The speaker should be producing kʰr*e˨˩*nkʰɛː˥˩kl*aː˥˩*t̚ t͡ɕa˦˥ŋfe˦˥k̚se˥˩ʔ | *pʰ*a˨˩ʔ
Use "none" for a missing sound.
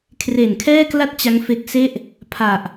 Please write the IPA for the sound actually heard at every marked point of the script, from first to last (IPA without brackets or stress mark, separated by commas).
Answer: e˨˩, a˥˩, pʰ